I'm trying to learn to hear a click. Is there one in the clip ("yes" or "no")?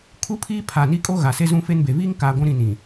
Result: no